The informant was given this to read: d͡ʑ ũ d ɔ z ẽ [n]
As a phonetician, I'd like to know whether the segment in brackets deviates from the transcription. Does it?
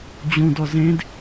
yes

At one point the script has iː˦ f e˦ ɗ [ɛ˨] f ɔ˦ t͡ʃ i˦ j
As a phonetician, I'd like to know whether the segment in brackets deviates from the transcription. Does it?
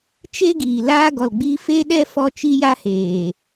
yes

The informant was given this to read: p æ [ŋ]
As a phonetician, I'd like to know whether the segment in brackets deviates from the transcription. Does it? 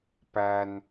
yes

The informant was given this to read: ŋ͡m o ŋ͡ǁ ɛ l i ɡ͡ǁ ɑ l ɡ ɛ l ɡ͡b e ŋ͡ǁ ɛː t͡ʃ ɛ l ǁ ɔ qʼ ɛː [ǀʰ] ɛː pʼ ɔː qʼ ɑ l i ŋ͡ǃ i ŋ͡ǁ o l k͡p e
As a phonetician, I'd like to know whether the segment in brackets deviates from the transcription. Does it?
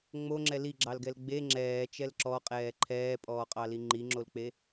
yes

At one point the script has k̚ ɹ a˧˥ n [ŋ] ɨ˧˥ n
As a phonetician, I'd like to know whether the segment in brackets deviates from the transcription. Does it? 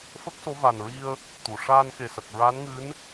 no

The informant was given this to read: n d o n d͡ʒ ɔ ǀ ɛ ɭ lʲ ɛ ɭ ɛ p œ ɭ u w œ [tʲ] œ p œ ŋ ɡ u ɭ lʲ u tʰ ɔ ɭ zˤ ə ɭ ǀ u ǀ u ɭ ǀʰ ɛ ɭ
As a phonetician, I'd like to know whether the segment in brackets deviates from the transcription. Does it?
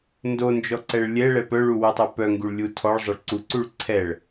yes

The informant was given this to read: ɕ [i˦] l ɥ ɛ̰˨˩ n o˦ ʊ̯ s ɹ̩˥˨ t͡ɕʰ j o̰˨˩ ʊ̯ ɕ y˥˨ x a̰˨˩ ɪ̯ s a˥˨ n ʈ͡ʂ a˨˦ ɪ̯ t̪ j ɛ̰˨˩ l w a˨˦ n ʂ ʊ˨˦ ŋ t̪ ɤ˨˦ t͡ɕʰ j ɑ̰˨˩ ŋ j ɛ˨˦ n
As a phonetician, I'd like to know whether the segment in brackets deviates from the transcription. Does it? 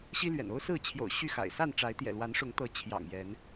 no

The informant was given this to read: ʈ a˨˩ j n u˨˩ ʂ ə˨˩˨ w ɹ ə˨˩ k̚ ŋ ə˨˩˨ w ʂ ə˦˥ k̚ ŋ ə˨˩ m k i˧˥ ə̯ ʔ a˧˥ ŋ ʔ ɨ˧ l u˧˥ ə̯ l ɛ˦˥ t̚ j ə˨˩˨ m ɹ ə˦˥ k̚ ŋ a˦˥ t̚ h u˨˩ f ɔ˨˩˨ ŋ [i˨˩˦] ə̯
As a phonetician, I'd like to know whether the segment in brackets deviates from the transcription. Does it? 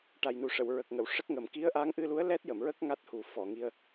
yes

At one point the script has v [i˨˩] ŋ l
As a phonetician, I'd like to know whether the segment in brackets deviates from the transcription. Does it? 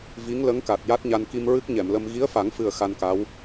yes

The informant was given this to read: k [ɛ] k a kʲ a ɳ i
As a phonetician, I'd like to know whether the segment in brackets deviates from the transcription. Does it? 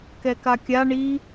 no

